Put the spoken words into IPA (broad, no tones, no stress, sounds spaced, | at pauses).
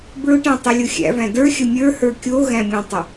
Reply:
b ɹ ʊ ʈ æ̃ tˤ i lʲ ʊ xʲ æ̰ v æ̃ d ə˞ xʲ ə mʲ ə˞ h ə˞ kʲ o ɣ æ̃ mʲ õ tˤ ə